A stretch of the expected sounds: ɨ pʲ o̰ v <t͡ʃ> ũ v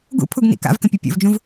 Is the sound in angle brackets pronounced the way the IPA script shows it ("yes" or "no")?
no